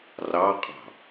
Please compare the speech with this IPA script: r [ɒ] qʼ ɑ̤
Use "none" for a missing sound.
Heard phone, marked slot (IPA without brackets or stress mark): ɑ